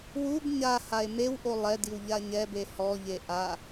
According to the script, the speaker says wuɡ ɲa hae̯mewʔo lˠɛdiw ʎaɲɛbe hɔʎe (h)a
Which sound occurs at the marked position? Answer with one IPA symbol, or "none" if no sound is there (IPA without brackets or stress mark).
ʔ